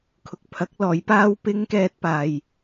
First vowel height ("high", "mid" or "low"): high